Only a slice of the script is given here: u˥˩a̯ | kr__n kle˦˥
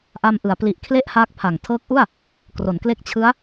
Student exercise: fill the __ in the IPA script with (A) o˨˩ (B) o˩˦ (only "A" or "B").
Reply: B